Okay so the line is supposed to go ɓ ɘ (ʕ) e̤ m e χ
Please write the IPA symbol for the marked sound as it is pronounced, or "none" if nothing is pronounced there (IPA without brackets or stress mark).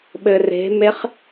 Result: r